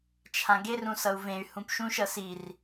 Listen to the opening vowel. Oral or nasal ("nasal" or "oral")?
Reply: nasal